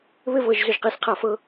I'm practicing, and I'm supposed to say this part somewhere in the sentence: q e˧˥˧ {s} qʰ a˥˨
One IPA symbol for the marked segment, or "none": s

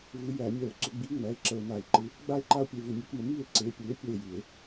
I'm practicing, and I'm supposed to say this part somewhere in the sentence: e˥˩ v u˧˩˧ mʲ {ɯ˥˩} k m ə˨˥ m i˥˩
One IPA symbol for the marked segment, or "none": ɯ˨˥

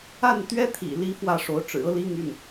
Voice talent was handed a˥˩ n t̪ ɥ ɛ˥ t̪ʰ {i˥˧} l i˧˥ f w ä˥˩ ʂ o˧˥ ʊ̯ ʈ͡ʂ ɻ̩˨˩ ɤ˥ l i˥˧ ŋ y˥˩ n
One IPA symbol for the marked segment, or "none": ḭ˨˩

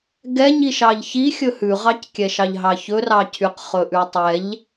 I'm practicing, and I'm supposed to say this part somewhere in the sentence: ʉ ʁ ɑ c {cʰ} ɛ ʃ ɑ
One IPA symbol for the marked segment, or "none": kʲ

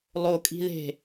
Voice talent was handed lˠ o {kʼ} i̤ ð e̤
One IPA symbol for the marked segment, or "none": kʼ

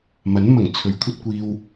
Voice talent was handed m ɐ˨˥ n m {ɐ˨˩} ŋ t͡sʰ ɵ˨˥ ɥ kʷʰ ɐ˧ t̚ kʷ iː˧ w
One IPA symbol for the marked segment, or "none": ɐ˨˩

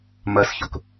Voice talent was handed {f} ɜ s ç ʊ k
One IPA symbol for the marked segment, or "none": m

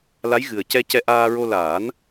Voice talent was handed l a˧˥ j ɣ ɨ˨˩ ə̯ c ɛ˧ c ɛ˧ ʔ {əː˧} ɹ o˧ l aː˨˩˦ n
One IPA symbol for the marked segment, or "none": aː˧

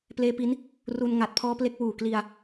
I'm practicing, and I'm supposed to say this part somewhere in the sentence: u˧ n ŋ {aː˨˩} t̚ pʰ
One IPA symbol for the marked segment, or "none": a˨˩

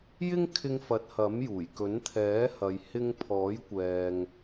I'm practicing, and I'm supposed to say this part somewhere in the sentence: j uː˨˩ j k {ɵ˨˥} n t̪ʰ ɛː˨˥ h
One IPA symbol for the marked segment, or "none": ɵ˨˥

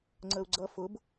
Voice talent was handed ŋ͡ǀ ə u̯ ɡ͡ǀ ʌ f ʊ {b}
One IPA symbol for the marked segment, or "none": b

